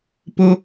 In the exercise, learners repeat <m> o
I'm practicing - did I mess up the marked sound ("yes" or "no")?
yes